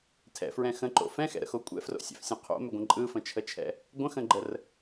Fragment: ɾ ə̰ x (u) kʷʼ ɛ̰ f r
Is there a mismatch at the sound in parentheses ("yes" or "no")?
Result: yes